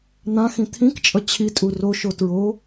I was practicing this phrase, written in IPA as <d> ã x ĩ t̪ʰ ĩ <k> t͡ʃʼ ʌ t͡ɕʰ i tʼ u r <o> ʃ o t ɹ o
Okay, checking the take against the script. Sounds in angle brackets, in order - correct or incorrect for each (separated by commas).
incorrect, correct, correct